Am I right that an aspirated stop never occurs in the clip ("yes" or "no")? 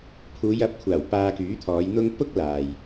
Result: no